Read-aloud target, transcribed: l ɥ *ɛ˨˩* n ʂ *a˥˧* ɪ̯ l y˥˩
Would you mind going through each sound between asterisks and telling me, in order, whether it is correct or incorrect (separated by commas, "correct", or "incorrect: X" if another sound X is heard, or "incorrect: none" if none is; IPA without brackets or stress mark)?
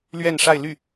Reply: incorrect: ɛ˥˧, correct